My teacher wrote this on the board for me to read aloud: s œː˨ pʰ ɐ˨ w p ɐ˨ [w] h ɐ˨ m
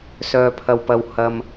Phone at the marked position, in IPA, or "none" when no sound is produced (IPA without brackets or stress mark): w